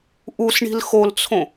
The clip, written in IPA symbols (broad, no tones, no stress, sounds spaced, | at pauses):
ʔ u s ɳ i̤ l x o l t͡sʰ õ